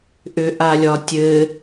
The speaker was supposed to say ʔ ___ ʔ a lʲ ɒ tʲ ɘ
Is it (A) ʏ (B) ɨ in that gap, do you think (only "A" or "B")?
A